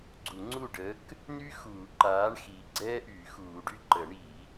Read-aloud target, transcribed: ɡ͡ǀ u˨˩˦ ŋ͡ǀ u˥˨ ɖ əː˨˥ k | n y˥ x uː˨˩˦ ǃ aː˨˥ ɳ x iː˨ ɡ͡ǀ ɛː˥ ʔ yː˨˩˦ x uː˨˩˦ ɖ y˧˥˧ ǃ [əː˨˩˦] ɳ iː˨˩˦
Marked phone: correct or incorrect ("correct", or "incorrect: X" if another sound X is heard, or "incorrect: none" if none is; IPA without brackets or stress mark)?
incorrect: ə˨˩˦